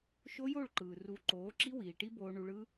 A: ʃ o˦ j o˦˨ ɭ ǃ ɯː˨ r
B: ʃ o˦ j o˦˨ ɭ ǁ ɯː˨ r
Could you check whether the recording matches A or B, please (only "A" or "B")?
A